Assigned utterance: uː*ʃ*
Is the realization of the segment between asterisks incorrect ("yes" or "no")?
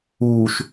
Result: no